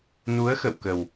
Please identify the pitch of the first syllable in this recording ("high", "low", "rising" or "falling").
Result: rising